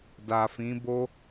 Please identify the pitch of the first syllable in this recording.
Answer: low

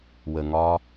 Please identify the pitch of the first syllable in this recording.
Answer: low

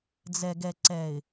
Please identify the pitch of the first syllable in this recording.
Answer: low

